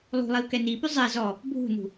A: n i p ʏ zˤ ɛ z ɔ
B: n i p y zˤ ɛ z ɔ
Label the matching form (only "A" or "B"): B